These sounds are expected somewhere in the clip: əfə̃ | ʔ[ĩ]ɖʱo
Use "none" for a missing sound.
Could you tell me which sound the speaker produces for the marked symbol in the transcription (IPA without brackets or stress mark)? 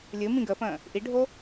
i